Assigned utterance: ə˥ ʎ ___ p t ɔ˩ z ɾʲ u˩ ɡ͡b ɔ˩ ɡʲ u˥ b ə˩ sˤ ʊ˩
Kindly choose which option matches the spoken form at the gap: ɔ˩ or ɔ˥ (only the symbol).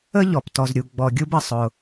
ɔ˩